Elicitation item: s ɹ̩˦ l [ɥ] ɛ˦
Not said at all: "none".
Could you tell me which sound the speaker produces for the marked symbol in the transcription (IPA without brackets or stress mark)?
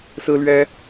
ɥ